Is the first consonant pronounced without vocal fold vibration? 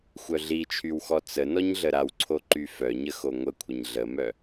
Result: yes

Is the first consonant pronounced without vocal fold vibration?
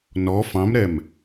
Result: no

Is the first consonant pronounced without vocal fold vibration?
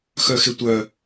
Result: yes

